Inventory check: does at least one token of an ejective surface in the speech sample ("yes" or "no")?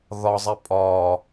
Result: yes